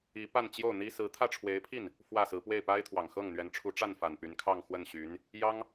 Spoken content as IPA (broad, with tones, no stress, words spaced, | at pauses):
i˧˥pa˥˧n t͡ɕjo˥˩ʊ̯n̪i˥ sɹ̩˧˥t̪ʰä˥˩ʈ͡ʂʰwe˧˥ɪ̯pʰi˥˩n | fwä˥˩sɹ̩˧˥ pwe˥˩ɪ̯pa˥ɪ̯t̪ʰwɑ˨˩ŋ xɤ˥˩ŋn̪ɥɛ˧˥n ʈ͡ʂʰu˧˥ʈ͡ʂa˥˩nfa˨˩n py˧˥nkʰɑ˥˧ŋxwə˥˩nɕy˧˥n | jɑ˥ŋ